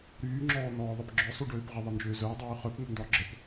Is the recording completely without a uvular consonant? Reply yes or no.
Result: no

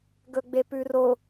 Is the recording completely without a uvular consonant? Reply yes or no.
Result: yes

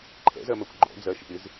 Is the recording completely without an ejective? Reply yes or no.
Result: yes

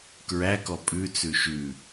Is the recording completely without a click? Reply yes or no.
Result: yes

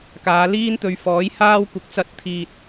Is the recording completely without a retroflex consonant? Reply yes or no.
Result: yes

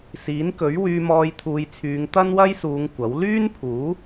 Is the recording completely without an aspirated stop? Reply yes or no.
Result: no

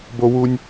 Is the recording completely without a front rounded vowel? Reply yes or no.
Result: yes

